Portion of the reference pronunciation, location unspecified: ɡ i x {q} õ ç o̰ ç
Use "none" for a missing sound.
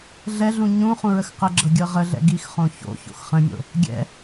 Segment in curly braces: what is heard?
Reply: χ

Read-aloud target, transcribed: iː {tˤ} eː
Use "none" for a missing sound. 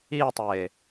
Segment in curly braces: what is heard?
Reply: tˤ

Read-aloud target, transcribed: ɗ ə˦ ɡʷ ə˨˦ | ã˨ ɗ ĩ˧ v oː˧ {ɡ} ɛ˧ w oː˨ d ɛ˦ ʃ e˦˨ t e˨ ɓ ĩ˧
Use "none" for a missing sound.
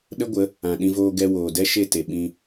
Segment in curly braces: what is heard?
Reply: ɡ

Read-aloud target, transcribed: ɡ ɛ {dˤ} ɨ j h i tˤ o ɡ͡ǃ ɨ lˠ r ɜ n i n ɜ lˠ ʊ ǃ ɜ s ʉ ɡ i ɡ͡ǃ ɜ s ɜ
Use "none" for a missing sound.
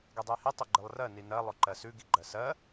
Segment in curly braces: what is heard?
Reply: dˤ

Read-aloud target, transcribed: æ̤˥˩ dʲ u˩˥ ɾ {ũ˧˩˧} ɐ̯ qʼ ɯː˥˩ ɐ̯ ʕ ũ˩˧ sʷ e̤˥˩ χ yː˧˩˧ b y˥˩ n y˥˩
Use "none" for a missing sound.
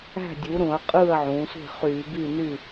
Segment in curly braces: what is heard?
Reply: ũ˧˩˧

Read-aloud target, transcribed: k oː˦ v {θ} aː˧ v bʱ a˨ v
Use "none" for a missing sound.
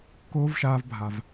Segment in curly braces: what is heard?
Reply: ʃ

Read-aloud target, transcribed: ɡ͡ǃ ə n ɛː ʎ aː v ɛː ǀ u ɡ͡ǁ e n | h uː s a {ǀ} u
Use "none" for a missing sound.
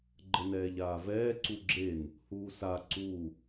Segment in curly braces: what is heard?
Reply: ǀ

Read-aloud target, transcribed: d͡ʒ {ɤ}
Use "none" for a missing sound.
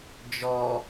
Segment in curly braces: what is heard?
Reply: ɔ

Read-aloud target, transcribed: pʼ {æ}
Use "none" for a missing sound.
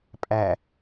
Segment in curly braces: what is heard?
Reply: æ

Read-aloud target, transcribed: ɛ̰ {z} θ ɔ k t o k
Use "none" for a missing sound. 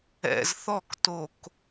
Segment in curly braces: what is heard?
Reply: z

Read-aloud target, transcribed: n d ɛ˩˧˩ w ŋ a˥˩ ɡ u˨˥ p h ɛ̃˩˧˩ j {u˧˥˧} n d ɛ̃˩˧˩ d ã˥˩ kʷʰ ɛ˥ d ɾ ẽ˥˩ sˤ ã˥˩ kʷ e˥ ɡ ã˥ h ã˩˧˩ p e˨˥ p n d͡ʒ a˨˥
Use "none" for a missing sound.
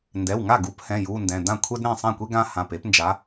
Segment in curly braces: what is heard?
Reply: u˧˥˧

